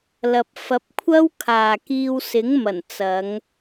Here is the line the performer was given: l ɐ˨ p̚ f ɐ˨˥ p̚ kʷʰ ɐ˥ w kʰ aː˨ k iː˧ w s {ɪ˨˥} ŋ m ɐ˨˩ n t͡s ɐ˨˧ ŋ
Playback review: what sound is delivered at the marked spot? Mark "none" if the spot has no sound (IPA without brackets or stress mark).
ɪ˨˥